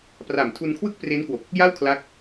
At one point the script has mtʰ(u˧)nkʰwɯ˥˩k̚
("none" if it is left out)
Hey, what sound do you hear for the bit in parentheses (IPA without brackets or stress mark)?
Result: u˧